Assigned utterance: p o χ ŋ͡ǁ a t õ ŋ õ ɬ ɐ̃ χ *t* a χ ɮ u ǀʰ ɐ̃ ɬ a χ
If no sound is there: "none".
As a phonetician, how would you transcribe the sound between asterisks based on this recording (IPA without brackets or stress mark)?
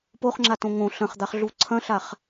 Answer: d̪